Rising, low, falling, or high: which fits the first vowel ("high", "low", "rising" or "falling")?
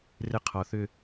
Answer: rising